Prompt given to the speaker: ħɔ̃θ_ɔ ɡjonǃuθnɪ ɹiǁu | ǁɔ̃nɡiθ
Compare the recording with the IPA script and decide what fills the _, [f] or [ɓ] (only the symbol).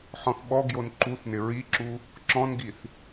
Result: ɓ